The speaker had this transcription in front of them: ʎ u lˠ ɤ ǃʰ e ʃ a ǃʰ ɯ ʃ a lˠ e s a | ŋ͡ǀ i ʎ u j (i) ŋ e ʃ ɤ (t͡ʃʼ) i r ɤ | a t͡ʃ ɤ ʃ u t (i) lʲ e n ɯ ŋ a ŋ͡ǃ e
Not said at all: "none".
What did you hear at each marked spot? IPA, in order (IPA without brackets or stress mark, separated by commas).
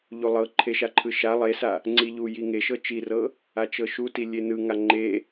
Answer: i, t͡ʃ, i